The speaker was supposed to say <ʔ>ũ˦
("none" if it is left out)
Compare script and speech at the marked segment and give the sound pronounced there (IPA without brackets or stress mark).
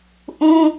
ʔ